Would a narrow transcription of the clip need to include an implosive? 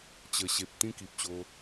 no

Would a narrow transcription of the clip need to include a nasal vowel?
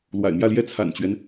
no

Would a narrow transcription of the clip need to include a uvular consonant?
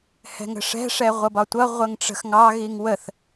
yes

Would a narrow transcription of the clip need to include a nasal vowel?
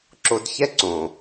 yes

